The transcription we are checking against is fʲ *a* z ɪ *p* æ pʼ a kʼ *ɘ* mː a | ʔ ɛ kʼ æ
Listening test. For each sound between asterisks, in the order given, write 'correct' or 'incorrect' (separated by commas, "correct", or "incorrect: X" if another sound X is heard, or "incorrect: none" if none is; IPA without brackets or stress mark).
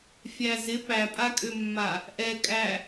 incorrect: æ, correct, incorrect: ø